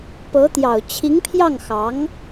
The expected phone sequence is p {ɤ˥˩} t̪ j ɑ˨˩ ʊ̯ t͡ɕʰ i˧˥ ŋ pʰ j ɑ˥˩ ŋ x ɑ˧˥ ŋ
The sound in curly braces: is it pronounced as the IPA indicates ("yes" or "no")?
no